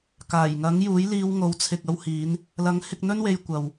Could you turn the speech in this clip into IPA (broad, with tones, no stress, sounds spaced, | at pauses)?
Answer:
k aː˨˩ j ŋ ɐ˨˥ ŋ j uː˨˥ j l iː˧ w ŋ o˨˥ w t͡sʰ ɪ˨ k̚ ɐ˧ w h iː˨˧ n | l ɐ˨˥ ŋ h ɪ˧ k̚ n̪ ɵ˥ n w e˧ j kʷ ɐ˨ w